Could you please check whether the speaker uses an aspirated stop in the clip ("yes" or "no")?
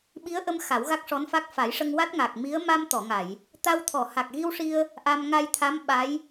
yes